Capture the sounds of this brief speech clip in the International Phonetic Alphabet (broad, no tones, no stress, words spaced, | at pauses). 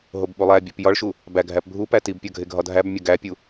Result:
ɦobɓulˠæbʲɒp jɒɭʃu | bæɡʱæp bʱupæ tibpʲɒ ɡʱeɡʱɒdʱæbmʲɒ ɡæpʲu